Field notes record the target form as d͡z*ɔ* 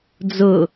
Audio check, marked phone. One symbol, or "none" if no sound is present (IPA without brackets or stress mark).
ʊ